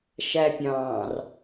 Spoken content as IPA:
ʃ æ pʲ ɑ̃ː r

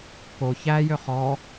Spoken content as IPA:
k o ç æ j ø χ ɔ

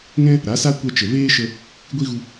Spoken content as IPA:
ŋ ɛ̃˦ | ɾ a˨˦ s a˦ kʷ ɛ˧ t͡ʃ ə˨ v eː˦ ʃ ə˧ | ɡʷ i˦ ɣ u˧

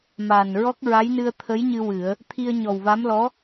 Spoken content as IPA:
m aː˨˩ n ɹ ɔ˦˥ k̚ ɹ a˧˥ j n ɨ˧ ə̯ t̪ʰ ə˧˥ j ɲ ɨ˧ w ɨ˨˩˦ ə̯ | t̪ʰ i˧ ə̯ ɲ ɔ˨˩ w v a˧˥ m l ɔ˧˥

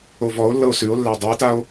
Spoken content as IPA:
o v ɔ o̯ lː ɤ o̯ s ʉ o̯ lː æ dˤ ʉ e̯ t a o̯

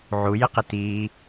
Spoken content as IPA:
ʕ u j ɪ q ɪ t i

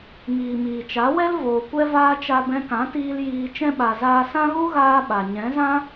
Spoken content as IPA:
ŋ iː˨ m iː˨ t͡ʃ a˨˦ w ɛ˦ l v oː˨ kʷ ɛ˦ v aː˦ t͡ʃ a˧ b ɛ̃˧ k ã˨˦ t iː˧ l j iː˧ t͡ʃ ɛ̃˧ ɓ a˨ z aː˧ s ã˦ ɣ u˦ ɣ aː˦ ɓ a˨ ɲ ɛ̃˨˦ z ã˦

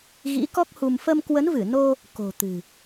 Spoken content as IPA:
ɣ ḭ˧˥ k ɔ˦˥ k̚ h u˧ m f ə˧ m k w ə˨˦ n v ɨ˧˩ n o˧ | k o̤˨˩ t̪ ɨ̤˨˩

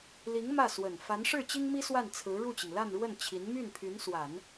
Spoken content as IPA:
l i˧˥ ŋ m ä˥˩ s w ə˨˩ n f a˧˥ n ʂ ɻ̩˥˩ t͡ɕ i˥ ŋ m i˥ s w a˥˩ n t͡sʰ ɹ̩˧˥ ɻ u˥˩ t͡ɕ i˩ ŋ l a˥˧ n ɻ w ə˥˩ n t͡ɕʰ i˧˥ n m y˥˩ n pʰ y˧˥ n s w a˨˩˦ n

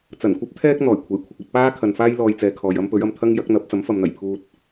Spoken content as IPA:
t͡s ɐ˨˩ n kʷ ɐ˥ p̚ t̪ʰ ɛː˥ k̚ n̪ ɔː˨˩ j kʷʰ e˨˩ j kʷʰ ɪ˨ k̚ ɵ˧ t̚ p aː˥ kʰ ɐ˨ n f aː˥ j l ɔː˧ j t͡s ɛː˨ kʰ ɔː˨ j ɐ˥ m p ɵ˨˥ ɥ ɐ˨ m t̪ʰ ɐ˥ ŋ j ɐ˨˥ k̚ n̪ ɐ˨˥ p̚ t͡s ɐ˨˥ m f ɐ˨ m n̪ ɐ˨˩ j pʰ uː˧ t̚

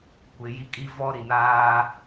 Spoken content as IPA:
kʷ ɪ˨ j i˦ kʼ i˦ v ɔ˦ ɾ i˨ n aː˦

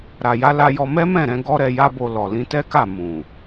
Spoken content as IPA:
ɾ a˨ j a˧ l a˧ j ɔ˧ m ɛ˦ m ɛ̃˦˨ ɾ ɛ̃˧ ɡ ɔ˦ ɾ ɛ˧ j a˦ b o˧ l ɔ˨ l ĩ˧ t ɛ˦ k a˦˨ m ũ˨

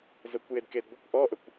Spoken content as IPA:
z ə kʷ j e d k e d ɡʷ ə kʷ ʔ ɔ ʔ ə kʷ

